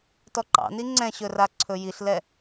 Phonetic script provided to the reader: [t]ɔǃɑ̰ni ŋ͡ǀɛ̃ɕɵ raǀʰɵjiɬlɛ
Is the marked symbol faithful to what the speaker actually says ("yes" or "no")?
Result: yes